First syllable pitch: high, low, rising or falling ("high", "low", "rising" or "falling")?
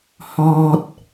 high